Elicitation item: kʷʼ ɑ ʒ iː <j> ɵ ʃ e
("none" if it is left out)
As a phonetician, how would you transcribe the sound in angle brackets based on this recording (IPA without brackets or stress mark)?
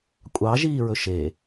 ɹ